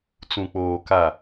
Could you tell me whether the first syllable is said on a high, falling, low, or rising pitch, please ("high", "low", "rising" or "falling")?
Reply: low